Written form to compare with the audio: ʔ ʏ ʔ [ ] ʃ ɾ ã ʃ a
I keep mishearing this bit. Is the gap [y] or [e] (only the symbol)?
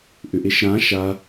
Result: e